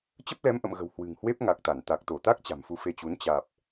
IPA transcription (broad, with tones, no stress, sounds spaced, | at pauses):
t͡ɕ ə˦˥ p̚ l ɛ˨˦ m ʔ ə̰˧˨ m ɣ ə̤˨˩ w h w ɨ̤˨˩ ŋ h w e˦˥ p̚ ŋ a˨˩ k̚ t̪ a˧˩ n t̪ a˨˩ k̚ t̪ o˧˩ t̪ a˦˥ k̚ t͡ɕ a̤˨˩ m f u˧ f e˧ t͡ɕ u˨˦ n t͡ɕ aː˨˩ p̚